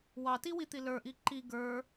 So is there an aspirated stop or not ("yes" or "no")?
no